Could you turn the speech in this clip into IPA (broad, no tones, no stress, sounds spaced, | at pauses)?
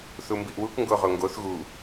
θ u m b i ʔ w u k ŋ ɡ o ʁ o ŋ ɡ o θ ɣ u